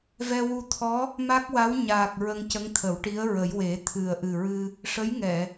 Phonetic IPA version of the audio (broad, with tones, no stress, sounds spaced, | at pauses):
v ɛ˧ w u˧ t̪ʰ ɔ˧˥ | m a˦˥ k̚ w a˧˥ w ɲ aː˨˩ k̚ ɹ ə˧ ŋ c ə˧˥ ŋ t̪ʰ ə˨˩˦ w ʈ i˧˥ ə̯ ɹ ə˨˩˦ j w e˨˩˦ t̪ʰ ɨ˨˩ ə̯ ʔ ɨ˨˩ ɹ ɨ˧ | ʂ ə˧˥ j ŋ ɛ˨˩˨